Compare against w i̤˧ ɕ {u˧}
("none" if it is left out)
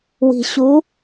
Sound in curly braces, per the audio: u˧˥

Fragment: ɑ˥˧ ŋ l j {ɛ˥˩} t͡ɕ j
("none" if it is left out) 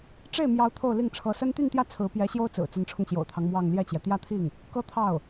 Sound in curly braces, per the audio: ɛ˥˩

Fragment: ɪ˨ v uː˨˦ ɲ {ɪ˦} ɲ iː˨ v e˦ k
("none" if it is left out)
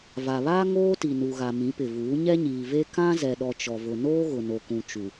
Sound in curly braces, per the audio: ɛ˦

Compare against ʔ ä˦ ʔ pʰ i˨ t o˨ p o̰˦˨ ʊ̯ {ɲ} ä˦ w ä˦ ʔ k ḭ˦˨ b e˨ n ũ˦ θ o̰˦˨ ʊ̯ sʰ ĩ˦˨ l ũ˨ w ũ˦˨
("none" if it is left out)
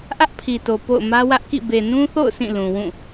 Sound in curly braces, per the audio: m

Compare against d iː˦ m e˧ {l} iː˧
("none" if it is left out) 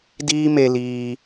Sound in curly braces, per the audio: l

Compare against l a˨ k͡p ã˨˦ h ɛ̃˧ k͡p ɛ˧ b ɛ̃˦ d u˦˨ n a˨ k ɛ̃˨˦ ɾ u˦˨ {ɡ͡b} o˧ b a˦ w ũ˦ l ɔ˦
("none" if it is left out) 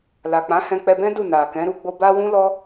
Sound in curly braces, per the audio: ɡ͡b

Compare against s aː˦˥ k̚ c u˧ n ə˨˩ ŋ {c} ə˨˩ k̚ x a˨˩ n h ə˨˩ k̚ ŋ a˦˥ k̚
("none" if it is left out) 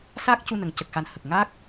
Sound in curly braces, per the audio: c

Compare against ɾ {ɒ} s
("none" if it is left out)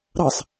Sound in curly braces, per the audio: ɑ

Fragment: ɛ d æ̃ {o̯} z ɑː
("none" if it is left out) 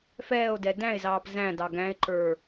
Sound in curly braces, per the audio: e̯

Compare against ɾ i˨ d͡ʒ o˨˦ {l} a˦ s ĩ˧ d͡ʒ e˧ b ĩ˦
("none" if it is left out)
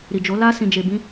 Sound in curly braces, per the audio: l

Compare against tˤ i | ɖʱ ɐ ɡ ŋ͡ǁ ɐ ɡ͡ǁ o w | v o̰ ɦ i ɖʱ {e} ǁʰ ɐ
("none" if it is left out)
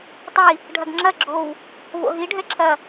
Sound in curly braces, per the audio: ɛ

